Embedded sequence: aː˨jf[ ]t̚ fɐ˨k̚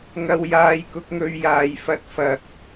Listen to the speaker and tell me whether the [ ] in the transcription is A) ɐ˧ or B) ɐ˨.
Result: A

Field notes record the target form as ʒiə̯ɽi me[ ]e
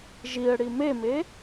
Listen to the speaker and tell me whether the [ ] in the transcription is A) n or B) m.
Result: B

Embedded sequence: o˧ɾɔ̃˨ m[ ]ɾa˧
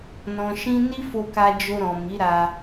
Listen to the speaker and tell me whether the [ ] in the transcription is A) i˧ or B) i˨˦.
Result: B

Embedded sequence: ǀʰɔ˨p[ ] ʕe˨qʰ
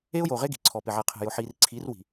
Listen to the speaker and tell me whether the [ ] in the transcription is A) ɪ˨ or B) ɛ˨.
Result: A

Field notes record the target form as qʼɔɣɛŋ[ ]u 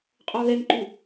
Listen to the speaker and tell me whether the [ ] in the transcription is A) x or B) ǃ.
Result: B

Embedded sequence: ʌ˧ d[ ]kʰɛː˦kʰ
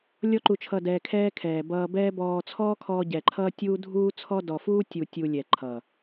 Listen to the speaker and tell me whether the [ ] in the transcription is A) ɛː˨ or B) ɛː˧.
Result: B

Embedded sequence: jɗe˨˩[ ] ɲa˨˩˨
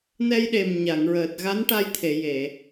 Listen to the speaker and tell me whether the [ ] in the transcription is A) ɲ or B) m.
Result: B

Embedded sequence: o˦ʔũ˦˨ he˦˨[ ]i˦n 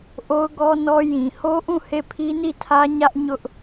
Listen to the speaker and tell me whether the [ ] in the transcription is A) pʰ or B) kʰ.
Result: A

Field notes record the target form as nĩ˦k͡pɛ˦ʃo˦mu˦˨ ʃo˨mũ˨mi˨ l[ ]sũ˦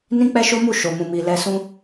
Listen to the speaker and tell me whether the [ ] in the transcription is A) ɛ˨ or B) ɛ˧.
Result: B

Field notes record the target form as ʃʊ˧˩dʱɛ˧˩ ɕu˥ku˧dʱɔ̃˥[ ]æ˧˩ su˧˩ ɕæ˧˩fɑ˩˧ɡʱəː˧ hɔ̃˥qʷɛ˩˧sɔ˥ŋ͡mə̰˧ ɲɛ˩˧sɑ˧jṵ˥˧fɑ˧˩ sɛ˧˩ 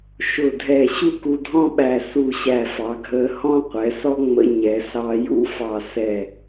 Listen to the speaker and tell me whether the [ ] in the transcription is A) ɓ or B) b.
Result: A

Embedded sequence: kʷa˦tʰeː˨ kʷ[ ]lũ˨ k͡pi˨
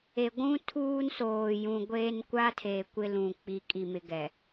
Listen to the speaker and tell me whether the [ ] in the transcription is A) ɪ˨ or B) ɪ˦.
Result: B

